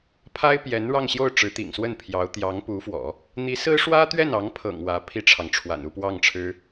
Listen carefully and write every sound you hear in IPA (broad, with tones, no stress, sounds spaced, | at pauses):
pʰ a˥ ɪ̯ p j ɛ˧˥ n ɻ ɑ˥˧ ŋ ɕ j o˥˩ ʊ̯ ʈ͡ʂ ɻ̩˧˥ t̪ ḭ˨˩ ŋ s w ə˥˩ n pʰ j ɑ˧˥ ʊ̯ t̪ j ɑ˧˥ ŋ p u˧˥ f w ɔ̰˨˩˦ | n̪ i˧˥ s ɹ̩˥ ʂ w ä˥ t̪ ɥ ɛ˥˩ n ɑ˧˥ ŋ pʰ ɤ̰˨˩ ŋ w ä˧˥ pʰ i˥ ʈ͡ʂʰ ɑ˨ ŋ ʈ͡ʂʰ w a̰˨˩ n u˥˧ p w ɑ˥˩ ŋ ʈ͡ʂʰ ɻ̩˥